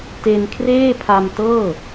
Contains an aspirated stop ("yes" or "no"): yes